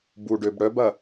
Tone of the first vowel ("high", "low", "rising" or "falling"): low